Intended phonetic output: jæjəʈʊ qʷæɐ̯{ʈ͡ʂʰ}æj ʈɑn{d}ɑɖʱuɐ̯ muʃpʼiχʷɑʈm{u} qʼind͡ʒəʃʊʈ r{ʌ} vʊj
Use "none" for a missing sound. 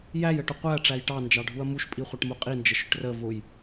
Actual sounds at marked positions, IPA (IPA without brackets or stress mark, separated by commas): ʈ͡ʂ, d͡ʒ, u, ə